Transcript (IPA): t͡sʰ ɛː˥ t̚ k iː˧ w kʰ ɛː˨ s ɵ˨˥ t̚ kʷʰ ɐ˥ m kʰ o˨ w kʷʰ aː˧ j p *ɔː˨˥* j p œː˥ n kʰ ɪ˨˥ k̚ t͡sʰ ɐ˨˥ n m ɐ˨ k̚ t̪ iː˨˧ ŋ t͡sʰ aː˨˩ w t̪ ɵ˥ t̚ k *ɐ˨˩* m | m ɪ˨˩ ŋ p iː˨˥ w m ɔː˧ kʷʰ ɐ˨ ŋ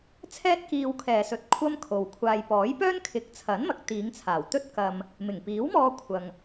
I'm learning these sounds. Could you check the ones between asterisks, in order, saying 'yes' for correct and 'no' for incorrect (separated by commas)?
yes, no